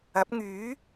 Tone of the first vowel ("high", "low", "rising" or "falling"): rising